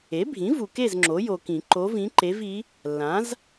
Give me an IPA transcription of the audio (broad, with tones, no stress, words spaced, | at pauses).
e˩˥bʱĩ˩˥ vu˨ke˥˨z ŋ͡ǁo˩˥jo˨kĩ˨˩˦ ǃo˧˥vĩ˧˥ǃe˧˥vi˧˥ | lːã˩˥z